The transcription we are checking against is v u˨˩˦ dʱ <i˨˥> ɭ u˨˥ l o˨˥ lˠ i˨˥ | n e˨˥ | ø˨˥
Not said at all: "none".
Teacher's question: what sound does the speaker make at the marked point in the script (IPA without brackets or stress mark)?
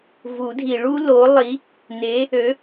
i˨˩˦